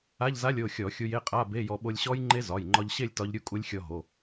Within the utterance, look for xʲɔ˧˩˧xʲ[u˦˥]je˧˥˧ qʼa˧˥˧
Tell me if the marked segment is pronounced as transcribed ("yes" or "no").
no